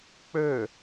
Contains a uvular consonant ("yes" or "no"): no